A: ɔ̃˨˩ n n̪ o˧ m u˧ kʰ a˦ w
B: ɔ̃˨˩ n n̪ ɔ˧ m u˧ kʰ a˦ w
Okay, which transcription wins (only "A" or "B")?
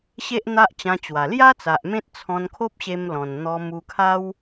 B